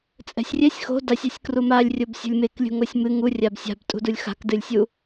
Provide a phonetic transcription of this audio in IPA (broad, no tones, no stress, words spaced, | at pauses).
t͡sʼɛ̤sʲrʲɛsʲ xo̤ dasʲasʲ krumalʲ rʲobsʲo̤lʲmek lʲṳŋosʲmɨ ŋurʲab sʲa̤btʼṳdulʲ xa̤kdɨlʲsʲu